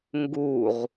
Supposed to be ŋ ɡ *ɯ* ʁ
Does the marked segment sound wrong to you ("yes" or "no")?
yes